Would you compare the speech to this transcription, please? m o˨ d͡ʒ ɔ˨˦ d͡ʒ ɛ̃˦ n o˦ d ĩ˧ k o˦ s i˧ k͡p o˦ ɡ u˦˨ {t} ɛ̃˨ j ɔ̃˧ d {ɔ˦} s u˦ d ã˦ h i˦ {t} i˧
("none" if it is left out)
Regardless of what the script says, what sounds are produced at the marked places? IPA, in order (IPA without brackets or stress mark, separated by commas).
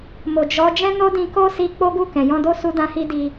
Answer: k, o˦, d